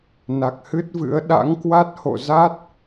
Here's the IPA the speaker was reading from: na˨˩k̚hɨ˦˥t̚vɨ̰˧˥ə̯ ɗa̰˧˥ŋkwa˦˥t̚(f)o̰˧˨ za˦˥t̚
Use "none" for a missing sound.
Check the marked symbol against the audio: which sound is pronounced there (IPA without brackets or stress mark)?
h